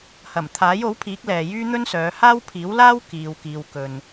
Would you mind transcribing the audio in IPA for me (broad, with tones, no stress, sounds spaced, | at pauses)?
h ɐ˨˩ m t̪ʰ aː˨˥ j o˨˥ w pʰ iː˨˥ k̚ l ɛː˨ j yː˥ n̪ ɵ˥ n s œː˨˧ h aː˥ w pʰ iː˨˥ w l aː˥ w k iː˨ w k iː˨ w k ɵ˨ n